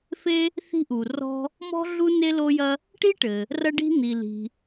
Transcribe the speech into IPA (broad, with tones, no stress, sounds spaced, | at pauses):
f e˥ | θ i̤˥ ʔ u˩ r ɔ̤˥ | m ɔ̤˥ ɮ u˥ n e˥ l o˥ j ɐ˥ | ʈ i˥ ʈ ɘ˩ | r ɐ˥ ɖ i̤˥ n̪ i˩ l i̤˩